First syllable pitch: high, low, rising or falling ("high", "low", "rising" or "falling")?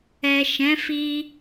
low